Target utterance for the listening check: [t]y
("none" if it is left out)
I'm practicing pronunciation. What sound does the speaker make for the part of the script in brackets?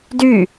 d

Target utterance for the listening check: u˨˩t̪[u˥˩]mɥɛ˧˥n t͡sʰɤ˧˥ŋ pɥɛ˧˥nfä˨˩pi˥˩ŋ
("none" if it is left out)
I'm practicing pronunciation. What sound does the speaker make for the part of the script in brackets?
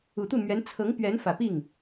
u˥˩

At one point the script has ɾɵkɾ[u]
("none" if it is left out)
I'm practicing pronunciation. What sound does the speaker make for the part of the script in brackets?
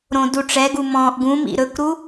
u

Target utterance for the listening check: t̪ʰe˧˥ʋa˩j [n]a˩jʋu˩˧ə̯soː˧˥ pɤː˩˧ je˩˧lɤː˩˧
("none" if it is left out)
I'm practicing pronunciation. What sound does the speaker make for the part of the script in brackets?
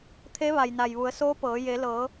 n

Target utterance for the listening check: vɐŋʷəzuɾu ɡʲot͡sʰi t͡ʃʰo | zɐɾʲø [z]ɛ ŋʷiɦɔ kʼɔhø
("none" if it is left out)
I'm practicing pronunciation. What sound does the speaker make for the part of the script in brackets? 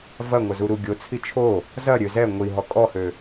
z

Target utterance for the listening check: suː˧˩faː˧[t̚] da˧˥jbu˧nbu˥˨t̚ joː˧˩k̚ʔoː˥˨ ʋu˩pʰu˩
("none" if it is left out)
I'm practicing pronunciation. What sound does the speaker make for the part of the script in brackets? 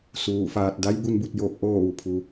t̚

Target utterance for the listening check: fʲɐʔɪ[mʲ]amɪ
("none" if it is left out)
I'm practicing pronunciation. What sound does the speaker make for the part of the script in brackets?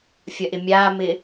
mʲ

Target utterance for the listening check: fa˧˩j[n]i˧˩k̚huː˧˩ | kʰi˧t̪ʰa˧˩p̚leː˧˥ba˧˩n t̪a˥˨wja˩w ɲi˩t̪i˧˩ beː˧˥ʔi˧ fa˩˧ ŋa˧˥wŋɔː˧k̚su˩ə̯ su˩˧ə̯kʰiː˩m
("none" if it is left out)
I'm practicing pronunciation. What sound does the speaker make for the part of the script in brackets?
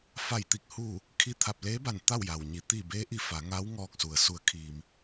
t̪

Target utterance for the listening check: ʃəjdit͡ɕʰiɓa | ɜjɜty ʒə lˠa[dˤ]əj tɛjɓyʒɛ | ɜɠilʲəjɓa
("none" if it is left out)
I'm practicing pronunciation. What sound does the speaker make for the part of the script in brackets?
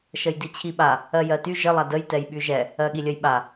d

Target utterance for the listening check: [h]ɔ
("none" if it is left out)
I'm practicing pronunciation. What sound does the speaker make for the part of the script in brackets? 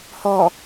h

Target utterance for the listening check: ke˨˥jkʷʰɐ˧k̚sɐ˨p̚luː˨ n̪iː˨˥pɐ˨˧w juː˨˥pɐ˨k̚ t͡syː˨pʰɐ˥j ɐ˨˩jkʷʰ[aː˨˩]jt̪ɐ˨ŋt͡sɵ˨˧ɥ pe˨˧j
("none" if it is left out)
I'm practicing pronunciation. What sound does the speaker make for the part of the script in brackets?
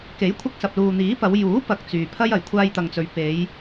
aː˧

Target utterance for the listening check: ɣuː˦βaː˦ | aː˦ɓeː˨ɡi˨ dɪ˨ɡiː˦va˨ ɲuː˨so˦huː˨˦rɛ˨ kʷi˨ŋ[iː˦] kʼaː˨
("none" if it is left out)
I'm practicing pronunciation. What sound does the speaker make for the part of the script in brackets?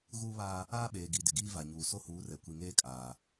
eː˦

